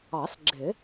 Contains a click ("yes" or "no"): yes